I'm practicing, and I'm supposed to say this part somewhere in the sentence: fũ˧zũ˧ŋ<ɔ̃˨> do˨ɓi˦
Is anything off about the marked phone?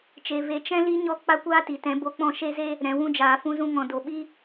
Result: no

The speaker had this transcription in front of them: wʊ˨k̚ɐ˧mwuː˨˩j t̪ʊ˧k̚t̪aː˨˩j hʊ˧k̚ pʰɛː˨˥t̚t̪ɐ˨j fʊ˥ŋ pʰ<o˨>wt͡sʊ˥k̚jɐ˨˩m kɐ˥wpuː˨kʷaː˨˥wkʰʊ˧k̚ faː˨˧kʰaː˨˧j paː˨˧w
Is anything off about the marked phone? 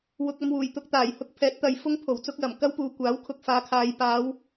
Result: yes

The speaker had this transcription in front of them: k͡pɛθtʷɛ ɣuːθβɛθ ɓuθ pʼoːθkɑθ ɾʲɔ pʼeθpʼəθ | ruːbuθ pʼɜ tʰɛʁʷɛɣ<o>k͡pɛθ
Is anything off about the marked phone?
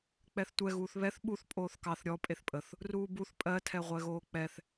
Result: yes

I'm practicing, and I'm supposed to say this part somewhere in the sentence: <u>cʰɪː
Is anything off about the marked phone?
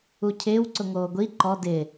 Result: no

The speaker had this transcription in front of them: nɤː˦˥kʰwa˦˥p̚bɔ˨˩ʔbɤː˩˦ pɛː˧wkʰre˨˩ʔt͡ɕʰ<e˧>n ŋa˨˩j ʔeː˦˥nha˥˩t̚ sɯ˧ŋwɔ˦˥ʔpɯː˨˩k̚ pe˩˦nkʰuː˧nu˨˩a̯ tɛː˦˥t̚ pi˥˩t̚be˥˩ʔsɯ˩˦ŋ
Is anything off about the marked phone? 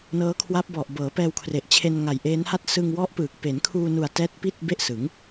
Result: no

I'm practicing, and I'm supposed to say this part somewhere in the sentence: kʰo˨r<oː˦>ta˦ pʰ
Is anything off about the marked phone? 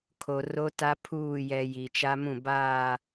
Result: yes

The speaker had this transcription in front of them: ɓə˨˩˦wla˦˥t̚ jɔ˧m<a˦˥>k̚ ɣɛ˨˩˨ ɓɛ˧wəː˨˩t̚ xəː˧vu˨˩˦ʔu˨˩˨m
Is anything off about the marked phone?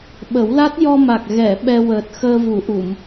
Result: yes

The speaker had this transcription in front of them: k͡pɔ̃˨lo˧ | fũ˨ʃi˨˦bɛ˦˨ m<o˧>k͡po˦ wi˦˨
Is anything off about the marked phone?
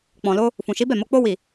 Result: no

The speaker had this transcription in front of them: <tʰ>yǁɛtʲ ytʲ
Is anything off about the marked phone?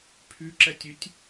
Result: yes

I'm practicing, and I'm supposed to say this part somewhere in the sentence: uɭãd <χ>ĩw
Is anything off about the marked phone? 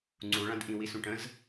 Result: yes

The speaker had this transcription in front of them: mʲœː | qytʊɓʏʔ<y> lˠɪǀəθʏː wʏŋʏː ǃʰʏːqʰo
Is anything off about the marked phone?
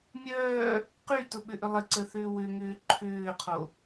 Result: yes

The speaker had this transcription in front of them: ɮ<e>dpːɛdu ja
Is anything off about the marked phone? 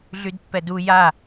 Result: yes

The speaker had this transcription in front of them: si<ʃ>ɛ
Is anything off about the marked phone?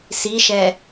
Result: no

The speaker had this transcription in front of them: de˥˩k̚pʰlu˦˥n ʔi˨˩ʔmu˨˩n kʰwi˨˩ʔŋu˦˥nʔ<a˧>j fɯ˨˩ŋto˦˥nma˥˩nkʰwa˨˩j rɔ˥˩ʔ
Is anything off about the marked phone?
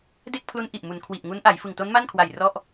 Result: yes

